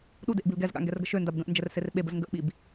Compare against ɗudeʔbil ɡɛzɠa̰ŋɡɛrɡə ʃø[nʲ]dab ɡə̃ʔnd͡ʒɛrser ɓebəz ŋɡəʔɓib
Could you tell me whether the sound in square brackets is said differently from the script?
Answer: yes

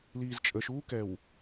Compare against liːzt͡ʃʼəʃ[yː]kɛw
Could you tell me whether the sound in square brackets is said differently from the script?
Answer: yes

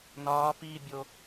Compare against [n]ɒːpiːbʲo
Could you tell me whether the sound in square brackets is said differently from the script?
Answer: no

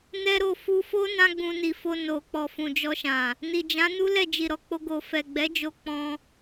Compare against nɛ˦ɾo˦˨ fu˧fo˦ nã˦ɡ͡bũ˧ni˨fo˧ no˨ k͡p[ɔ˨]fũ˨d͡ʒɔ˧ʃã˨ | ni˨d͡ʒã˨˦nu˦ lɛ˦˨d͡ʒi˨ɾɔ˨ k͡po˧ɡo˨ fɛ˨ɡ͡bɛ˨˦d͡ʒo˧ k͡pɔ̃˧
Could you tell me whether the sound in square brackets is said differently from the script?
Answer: no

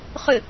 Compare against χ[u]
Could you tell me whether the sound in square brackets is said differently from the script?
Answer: yes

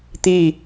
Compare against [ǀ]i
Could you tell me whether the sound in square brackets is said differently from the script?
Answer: yes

